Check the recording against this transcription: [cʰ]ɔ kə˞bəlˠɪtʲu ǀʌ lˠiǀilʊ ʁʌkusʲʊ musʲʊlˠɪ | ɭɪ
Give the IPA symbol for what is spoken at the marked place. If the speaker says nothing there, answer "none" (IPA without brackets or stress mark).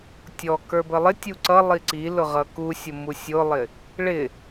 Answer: tʲ